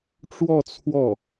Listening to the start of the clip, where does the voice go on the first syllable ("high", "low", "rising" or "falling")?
falling